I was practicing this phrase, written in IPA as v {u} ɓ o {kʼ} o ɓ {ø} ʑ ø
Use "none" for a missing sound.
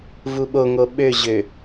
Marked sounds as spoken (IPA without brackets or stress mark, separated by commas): u, ŋ, ø